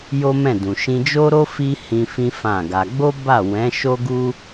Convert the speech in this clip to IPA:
jo˦mɛ̃˦˨dũ˨ ʃĩ˧d͡ʒo˦ɾo˦ fi˦ hĩ˧ fĩ˦fã˦˨ɡa˧ ɡ͡bo˦ba˦˨ wɛ̃˨˦ʃo˦ɡu˦

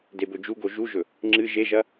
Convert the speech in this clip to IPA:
debɵd͡ʒuɡo ʒuʒɵ | ŋ͡ǁɨ ʒeʒɐ

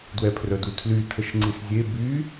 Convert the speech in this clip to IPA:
dwɛpʰrœdutʰly tʰəʃŋ͡ǀiszʲe by

